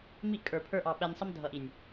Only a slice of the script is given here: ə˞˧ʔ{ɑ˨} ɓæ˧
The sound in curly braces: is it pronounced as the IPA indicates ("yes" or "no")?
yes